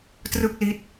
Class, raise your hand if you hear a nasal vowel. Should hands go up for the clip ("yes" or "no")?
no